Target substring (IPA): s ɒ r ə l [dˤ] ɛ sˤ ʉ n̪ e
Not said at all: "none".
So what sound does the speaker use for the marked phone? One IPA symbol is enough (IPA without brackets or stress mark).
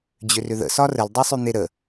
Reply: dˤ